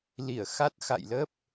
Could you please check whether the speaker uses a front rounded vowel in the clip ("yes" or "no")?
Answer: no